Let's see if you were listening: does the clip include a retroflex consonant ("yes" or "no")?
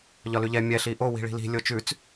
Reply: yes